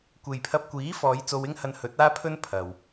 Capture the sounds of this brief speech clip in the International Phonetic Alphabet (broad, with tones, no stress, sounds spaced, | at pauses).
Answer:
kʷ e˨ j pʰ ɐ˧ p̚ kʷ iː˨˥ f ɔː˨˧ j t͡s o˧ w ɪ˥ ŋ h ɐ˧ n h ɵ˨˥ t̚ aː˥ pʰ ɵ˥ n pʰ ɐ˨ w